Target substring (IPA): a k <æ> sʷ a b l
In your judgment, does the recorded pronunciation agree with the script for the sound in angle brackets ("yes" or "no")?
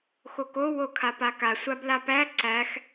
no